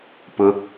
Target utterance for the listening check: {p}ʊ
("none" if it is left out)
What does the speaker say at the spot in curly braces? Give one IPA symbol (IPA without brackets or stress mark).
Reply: p